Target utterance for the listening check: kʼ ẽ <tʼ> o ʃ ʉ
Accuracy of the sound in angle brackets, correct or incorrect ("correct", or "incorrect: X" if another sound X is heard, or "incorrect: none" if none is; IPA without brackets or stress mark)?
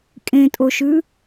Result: correct